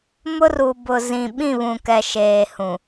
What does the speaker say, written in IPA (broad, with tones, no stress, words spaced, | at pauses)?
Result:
mʊ˦ru˨bʊ˨zĩ˨ ɓĩ˦˨βũ˨kɛ˨ ʃeː˨hũ˨